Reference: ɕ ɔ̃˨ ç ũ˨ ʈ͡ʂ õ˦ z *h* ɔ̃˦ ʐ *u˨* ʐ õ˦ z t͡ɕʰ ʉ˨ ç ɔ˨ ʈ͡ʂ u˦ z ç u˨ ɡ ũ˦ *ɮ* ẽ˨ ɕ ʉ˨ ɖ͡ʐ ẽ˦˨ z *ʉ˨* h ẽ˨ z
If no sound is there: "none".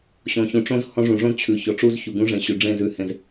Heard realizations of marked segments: h, ũ˨, ʐ, ʉ˨

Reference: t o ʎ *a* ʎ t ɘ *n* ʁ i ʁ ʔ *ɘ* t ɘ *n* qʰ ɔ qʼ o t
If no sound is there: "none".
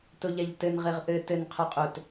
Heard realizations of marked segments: a, n, ɘ, n

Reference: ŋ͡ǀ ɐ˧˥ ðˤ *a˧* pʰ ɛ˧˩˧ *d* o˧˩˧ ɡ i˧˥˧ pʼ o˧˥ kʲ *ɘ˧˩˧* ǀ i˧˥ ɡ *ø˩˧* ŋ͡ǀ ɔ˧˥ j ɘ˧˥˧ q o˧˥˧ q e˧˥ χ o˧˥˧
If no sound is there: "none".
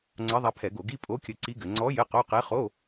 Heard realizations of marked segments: a˧, ɡ, ɘ˧, ɘ˩˧

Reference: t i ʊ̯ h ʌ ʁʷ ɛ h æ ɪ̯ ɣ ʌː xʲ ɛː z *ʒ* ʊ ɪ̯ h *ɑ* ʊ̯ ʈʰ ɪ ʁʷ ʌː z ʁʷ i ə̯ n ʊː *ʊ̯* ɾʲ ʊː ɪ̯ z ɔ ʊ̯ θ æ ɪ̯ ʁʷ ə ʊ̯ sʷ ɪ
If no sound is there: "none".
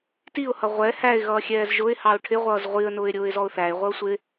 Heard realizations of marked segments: ʒ, ɑ, ɪ̯

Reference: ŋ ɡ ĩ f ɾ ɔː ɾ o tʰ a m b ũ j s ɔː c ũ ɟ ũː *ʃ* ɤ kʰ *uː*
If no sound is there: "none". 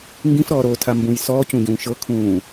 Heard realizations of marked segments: ʃ, ũː

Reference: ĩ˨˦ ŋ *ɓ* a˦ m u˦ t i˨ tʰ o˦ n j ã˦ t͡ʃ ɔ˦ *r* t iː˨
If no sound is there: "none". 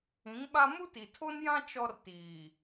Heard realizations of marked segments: ɓ, r

